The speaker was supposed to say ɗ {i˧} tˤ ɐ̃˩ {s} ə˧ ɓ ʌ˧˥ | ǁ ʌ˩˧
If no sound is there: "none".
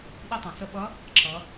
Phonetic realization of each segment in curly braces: i˧, s

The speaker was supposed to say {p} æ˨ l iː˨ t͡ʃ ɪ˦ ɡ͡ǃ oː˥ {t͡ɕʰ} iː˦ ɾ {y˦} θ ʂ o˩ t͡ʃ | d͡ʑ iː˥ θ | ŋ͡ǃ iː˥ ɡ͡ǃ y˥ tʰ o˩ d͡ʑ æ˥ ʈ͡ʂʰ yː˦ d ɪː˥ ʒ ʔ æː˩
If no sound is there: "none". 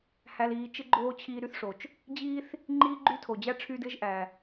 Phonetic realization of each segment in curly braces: h, t͡ɕʰ, y˦

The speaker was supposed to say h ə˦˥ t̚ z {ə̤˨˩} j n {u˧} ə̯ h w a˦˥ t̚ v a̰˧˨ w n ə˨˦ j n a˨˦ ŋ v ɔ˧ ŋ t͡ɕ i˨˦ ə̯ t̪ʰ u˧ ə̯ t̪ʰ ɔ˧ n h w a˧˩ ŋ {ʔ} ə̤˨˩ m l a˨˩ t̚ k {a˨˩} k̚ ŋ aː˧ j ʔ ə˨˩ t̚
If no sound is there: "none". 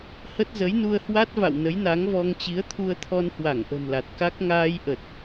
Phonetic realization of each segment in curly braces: ə˨˦, u˧, ʔ, a˦˥

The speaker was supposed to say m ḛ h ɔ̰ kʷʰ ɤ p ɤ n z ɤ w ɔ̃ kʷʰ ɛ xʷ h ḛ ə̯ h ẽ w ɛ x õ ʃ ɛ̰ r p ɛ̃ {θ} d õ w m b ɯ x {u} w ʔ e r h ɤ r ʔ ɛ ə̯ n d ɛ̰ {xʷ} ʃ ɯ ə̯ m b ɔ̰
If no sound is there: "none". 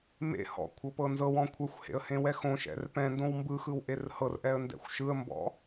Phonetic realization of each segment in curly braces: n, ɯ, xʷ

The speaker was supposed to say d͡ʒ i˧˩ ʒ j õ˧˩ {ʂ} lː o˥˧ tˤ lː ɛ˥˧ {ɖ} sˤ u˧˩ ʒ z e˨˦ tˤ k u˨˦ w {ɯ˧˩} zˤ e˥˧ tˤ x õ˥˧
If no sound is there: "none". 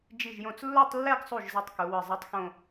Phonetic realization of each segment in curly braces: t͡s, ɡ, ɯ˧˩

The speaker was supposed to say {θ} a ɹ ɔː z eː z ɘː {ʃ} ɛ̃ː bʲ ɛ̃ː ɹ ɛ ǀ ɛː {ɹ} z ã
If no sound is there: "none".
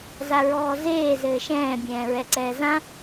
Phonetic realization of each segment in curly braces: z, ʃ, none

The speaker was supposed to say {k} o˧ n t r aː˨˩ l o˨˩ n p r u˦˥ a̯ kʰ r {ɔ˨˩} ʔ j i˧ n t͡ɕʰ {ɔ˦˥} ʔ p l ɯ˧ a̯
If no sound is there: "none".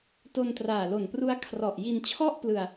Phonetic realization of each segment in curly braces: t, ɔ˨˩, ɔ˥˩

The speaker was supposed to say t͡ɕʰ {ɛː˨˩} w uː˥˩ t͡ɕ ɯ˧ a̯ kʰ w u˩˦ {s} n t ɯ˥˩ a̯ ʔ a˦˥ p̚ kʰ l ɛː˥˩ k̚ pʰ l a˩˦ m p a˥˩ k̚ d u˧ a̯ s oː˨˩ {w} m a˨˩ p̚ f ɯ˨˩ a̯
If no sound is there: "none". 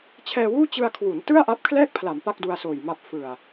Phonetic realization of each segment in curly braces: ɛː˧, none, j

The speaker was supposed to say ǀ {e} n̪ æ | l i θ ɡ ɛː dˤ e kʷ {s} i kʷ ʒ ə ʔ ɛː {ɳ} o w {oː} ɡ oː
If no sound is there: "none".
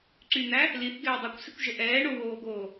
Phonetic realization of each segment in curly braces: y, s, ɳ, oː

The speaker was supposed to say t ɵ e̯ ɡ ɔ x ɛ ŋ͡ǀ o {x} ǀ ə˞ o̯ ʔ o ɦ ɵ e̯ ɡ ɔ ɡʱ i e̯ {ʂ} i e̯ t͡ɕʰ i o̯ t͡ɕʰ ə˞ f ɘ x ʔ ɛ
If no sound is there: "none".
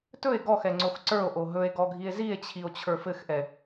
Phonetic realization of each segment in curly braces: x, z

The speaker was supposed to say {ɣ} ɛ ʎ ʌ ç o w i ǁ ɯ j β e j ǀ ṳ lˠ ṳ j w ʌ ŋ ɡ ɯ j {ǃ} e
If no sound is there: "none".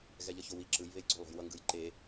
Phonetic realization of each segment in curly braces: ɣ, ǃ

